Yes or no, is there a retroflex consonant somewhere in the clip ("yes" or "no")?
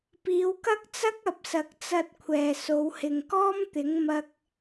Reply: no